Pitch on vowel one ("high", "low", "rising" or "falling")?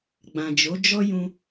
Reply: low